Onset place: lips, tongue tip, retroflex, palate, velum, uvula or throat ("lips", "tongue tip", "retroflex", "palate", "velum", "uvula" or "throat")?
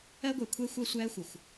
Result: velum